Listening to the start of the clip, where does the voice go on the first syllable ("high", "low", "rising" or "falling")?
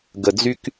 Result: low